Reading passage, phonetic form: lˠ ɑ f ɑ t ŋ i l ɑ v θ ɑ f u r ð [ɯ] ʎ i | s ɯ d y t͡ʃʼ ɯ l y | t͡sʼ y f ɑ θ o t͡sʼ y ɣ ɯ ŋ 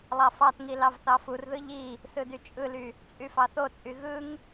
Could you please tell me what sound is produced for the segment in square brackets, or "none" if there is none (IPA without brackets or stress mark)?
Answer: ɯ